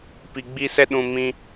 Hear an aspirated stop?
no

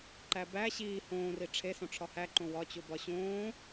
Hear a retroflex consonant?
yes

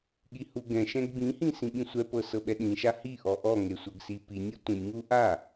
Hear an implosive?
yes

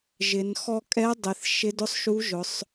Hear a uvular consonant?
no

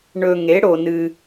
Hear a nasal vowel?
no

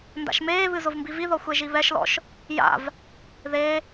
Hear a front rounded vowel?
no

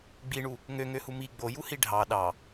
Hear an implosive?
yes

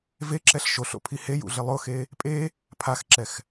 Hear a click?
yes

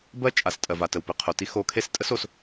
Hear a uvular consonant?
yes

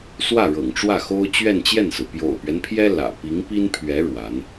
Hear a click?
no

